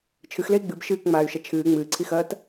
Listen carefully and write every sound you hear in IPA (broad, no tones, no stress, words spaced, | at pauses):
t͡ʃʰɨxlei̯ ɡ͡bɨb ʃɨːkŋ͡maːy̯ʃɐ t͡ʃʰɨː ŋ͡mɨːǀʰixɐːt